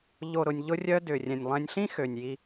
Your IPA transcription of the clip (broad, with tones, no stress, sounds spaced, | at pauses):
ʎ o˨ ɾ ʊ˨ nʲ ʎ ʊ˧ rʲ œ˧ d ʏ˨ rʲ ɛ̃˨ nʲ lˠ ɛ̃˧ nʲ ɬ ĩ˦ x ø˨ nʲ j i˧